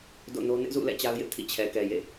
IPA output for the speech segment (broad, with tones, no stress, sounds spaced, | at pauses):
d o̰˦˨ n o˦ n ɪ˦ ʔ z ṵ˦˨ l ɛ̰˦˨ t͡ɕ a˦ ʊ̯ j ɪ˦ ʔ tʰ ḭ˦˨ t͡ɕʰ ɛ˨ k ɛ˨ j ḛ˦˨